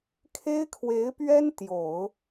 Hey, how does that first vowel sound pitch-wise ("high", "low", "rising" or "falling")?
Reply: high